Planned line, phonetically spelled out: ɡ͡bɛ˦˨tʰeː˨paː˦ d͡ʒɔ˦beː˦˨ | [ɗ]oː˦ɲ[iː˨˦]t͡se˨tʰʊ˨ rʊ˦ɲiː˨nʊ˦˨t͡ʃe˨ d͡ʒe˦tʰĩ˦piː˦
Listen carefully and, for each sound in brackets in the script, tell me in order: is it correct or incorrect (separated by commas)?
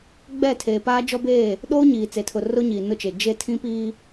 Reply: correct, incorrect